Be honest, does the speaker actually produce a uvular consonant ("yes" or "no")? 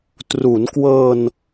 no